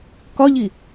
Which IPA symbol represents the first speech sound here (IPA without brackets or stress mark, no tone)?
k